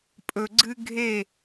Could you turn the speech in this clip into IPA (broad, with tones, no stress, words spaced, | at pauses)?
pʼɵ˨ɡ͡ǀɨ˧ ɡʱe˦˨